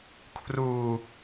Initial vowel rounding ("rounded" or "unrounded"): rounded